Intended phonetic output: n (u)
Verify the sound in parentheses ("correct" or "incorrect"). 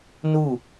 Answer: correct